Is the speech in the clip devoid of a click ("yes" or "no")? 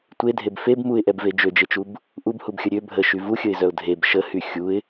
yes